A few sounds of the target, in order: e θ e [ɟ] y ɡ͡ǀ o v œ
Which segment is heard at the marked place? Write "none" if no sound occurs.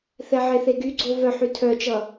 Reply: ɡ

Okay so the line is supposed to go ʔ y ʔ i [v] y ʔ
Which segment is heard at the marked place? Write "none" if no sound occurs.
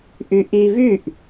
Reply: v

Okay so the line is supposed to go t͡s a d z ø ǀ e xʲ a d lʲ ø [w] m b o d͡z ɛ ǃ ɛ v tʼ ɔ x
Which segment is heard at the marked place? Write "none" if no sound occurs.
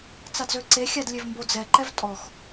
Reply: v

